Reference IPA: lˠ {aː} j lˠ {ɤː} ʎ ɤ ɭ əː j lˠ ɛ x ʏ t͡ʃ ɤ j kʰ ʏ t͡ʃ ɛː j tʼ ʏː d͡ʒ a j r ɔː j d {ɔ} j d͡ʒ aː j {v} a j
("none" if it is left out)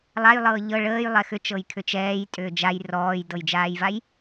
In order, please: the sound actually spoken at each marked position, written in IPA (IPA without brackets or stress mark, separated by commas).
a, ɤː, ɤ, v